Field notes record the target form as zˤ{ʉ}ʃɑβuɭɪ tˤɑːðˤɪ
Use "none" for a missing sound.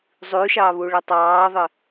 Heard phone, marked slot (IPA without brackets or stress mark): ʉ